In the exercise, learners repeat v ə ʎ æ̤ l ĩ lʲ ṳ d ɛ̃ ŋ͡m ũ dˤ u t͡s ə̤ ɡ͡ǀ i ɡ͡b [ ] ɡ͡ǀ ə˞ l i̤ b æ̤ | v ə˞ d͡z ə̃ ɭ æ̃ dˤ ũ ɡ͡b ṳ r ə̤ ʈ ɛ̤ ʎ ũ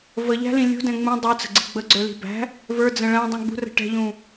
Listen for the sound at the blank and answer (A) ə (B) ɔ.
A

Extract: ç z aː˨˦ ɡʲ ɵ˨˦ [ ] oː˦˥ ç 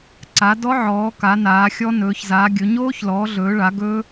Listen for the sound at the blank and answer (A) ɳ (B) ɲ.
B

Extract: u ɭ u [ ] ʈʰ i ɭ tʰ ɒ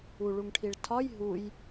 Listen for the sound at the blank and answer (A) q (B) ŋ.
B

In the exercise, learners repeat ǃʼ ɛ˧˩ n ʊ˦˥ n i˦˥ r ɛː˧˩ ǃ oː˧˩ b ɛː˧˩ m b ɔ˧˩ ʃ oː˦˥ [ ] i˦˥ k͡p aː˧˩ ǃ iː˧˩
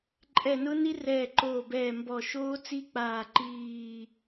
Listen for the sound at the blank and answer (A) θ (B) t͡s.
B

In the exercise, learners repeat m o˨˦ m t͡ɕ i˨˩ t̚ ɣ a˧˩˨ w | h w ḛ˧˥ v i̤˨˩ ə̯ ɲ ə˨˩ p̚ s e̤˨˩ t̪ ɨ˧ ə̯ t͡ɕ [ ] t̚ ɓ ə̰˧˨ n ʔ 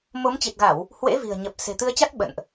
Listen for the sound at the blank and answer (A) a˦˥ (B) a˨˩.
A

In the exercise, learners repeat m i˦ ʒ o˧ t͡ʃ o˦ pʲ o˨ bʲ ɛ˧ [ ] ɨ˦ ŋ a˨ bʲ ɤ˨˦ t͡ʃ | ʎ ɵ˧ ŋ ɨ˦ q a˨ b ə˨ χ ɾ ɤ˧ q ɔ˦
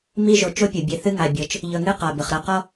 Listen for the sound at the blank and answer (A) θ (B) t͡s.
A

